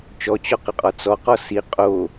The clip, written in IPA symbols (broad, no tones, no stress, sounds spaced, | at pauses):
t͡ʃ ɔ t͡ɕ ɔ q ɪ qʼ ɔ t͡s ɔ q ɔ s i qʼ o